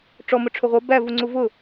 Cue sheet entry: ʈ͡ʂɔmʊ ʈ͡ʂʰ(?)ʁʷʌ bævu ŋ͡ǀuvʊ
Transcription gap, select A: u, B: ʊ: B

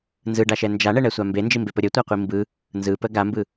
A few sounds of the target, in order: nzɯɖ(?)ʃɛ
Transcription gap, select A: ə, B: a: B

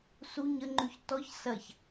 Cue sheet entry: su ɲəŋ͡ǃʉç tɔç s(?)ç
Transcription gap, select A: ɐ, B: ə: A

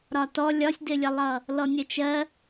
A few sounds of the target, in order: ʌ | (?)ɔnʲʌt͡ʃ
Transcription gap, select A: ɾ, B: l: B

